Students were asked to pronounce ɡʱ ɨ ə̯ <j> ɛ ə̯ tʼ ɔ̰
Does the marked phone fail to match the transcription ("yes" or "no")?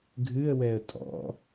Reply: yes